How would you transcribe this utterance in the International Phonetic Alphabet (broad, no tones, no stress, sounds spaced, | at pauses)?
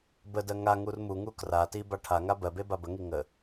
b ə d ɜ ŋ a ŋ u r m u ŋ u k r a t i b a ʈʰ a ŋ a b ɜ b e b a b ə ŋ i ŋ ə